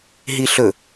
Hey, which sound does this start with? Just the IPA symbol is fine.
ɦ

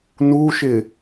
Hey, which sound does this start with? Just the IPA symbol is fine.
n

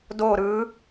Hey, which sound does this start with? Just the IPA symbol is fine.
d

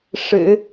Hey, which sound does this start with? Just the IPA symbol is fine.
ʂ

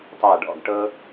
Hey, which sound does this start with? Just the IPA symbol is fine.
tˤ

